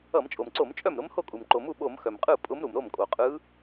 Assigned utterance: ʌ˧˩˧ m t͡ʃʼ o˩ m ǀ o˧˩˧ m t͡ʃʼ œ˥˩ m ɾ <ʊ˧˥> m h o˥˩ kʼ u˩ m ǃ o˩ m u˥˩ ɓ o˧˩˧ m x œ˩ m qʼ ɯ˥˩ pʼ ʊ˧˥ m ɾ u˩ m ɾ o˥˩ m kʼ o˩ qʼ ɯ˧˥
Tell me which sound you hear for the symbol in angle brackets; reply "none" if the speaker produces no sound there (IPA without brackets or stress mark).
ʊ˧˥